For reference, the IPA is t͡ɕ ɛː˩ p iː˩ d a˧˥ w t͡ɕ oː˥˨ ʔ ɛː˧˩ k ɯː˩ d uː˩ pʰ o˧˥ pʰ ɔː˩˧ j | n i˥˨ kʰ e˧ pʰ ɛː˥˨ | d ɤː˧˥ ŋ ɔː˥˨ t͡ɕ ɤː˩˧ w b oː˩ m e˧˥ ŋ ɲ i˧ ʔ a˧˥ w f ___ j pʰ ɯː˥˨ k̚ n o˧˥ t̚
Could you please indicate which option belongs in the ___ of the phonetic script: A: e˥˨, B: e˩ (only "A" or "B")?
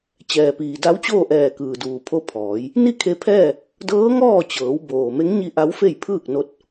A